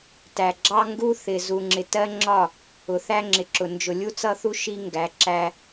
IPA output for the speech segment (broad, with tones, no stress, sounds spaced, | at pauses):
t æ˨ ɡ͡ǁ ɑ˦ ŋ ɡ u˦ θ ɪ˨ z u˨ ŋ͡ǁ ɪ˨ t ɜ˦ ŋ͡ǁ ɒ˦˨ | ʊ˨ θ æ˦ ŋ͡ǁ ɪ˨ ǁ ʊ˨ n d͡ʒ ʊ˨ lʲ u˦ t͡s ʌ˦ θ u˦ ʃ i˦ ŋ ɡ æ˨˦ ǁ æ˦